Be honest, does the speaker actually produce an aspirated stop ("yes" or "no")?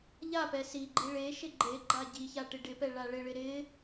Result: no